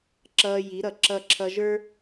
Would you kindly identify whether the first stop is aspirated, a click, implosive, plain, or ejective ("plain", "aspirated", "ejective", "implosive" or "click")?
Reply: click